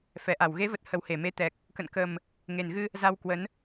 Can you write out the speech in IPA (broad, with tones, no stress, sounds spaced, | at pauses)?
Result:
f ɛ˨˩ ʔ a˧˩ w ɣ e˨˦ v ə˨˩ t̚ h ə˧˩ w h e˧˩ m e˨˦ t̪ ɛ˨˩ k̚ | k ə̰˧˨ n k ə˨˩ m | ŋ e˨˩ n ɣ ɨ˧ | z a˧ w k w ə˨˦ n